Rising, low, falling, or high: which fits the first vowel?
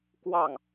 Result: falling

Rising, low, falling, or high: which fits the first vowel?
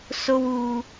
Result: high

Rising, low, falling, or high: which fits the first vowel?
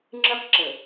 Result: high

